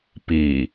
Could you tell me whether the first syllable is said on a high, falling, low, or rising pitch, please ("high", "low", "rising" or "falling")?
low